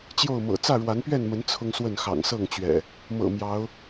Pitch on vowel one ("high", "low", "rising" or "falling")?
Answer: falling